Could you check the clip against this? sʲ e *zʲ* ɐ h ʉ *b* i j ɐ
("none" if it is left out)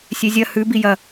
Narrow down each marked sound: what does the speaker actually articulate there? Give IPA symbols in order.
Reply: zʲ, b

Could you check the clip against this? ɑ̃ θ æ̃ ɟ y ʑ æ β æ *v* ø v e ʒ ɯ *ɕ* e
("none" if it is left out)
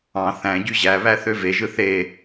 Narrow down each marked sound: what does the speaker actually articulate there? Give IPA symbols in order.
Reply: θ, θ

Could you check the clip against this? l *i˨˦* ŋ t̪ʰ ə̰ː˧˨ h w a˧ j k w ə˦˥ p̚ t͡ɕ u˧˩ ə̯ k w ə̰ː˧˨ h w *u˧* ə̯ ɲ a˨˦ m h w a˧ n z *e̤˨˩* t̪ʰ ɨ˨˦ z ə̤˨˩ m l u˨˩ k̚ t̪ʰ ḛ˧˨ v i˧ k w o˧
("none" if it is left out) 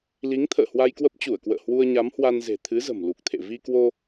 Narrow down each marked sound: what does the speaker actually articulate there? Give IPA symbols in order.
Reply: i˨˦, u˧, e̤˨˩

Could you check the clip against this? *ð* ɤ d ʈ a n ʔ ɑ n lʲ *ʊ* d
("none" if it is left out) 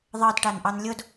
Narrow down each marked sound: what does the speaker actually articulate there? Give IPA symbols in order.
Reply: ðˤ, ʊ

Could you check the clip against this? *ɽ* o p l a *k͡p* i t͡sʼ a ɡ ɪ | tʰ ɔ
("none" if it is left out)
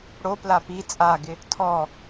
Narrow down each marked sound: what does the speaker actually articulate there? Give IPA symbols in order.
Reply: ɽ, p

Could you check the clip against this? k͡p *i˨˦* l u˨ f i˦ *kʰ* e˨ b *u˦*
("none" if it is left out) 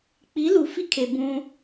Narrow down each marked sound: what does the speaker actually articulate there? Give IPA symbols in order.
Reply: i˨˦, kʰ, ũ˦

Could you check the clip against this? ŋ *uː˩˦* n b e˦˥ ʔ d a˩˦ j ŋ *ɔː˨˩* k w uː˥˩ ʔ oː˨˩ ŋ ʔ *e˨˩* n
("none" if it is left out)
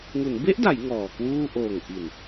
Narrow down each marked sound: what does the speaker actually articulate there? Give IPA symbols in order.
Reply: u˩˦, ɔː˨˩, i˨˩

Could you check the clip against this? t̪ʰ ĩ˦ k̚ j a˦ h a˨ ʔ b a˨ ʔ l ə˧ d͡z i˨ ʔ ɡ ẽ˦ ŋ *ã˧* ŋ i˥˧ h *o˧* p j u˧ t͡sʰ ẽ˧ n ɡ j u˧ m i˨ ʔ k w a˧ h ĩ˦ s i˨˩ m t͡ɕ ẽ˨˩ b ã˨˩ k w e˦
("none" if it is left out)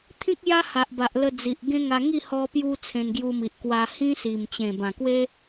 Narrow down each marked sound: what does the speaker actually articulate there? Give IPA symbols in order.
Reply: a˧, ɔ˧

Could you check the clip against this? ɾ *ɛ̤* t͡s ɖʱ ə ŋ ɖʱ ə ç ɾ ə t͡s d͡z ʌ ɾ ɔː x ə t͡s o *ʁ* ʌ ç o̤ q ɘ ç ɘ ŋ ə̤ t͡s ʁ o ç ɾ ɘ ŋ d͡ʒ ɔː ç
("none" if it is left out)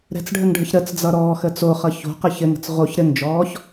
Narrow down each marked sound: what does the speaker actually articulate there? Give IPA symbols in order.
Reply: ɛ̤, χ

